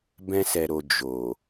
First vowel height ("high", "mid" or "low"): mid